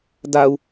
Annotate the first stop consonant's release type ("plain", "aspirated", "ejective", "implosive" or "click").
plain